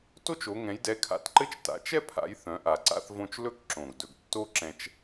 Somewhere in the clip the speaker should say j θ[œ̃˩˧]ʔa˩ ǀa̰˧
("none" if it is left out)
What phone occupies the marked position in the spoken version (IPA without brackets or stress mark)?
œ̃˩˧